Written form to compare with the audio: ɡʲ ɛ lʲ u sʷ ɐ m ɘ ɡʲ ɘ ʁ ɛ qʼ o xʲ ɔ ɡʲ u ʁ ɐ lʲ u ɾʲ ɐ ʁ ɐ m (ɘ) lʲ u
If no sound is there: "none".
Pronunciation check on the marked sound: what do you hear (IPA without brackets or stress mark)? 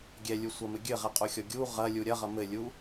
ɘ